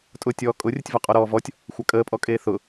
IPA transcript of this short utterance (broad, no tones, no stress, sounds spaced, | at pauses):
tʼ ʊ tʲ ɔː kʼ ʊ rʲ ə tʲ v ɒ qʼ ɔ ɾ ɔː v ɔ tʲ | xʷ a kʼ əː pʼ ɔ kʼ eː θ ʊ